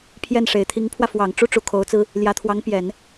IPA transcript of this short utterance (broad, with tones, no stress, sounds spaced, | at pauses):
pʰ j ɛ˥˩ n ʂ e˨˩ ɪ̯ t̪ʰ i˧˥ ŋ pʰ w ä˧ f w ɑ˨˩ ŋ ʈ͡ʂ u˥ ʈ͡ʂ u˧˥ kʰ o˧˥ ʊ̯ t͡s ɹ̩˥ | l j ä˧˥ t̪ʰ w ɑ˧˥ ŋ p j ɛ˨˩˦ n